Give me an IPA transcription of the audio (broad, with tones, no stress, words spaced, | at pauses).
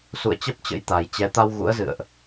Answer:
sṵ˧˨ə̯t͡ɕə˦˥p̚t͡ɕə̰˧˥jt̪a˨˩j t͡ɕɛ˨˦ t̪a˧w ɣṵ˧˥ə̯zɨ̰˧˨ə̯ʔ